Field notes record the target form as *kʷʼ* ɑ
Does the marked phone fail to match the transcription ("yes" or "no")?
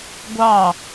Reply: yes